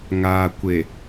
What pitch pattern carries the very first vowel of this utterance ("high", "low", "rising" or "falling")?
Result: low